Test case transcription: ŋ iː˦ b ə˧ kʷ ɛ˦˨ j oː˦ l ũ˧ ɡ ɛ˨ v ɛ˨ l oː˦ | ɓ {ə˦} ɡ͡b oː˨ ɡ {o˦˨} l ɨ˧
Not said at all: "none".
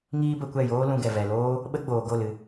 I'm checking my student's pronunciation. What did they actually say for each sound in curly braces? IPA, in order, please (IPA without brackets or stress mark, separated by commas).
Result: ə˦, o˦˨